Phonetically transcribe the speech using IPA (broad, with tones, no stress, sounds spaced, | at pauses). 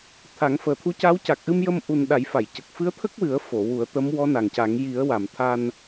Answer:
t̪ʰ a˨˩˦ ŋ f əː˨˩ t̪ʰ u˧˥ c a˧˥ w c a˨˩ k̚ ʔ ɨ˧ m j ə˧ m ʔ u˨˩ n ɗ a˨˩˦ j f a˨˩˨ j c ə˨˩ k̚ f ɨ˧˥ ə̯ t̪ʰ ə˦˥ k̚ w ɨ˨˩˦ ə̯ f o˨˩˨ w u˨˩˦ ə̯ t̪ ə˧˥ m w ɔ˧˥ n a˨˩ ŋ c a˨˩˦ ŋ j i˨˩˦ ə̯ w a˨˩˨ m t̪ʰ a˧ n